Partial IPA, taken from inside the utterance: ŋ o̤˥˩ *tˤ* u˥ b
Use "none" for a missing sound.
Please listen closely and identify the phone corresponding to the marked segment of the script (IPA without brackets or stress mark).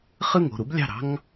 ɾ